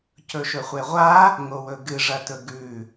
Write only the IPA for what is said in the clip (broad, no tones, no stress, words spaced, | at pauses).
cɵʃɵχʷeʁʷa | ŋowɵɡɨ ʐɐtɵɡʉ